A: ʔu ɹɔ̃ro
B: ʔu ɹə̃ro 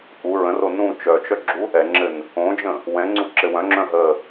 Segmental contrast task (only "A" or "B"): B